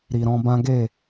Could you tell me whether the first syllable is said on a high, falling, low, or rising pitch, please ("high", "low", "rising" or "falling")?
low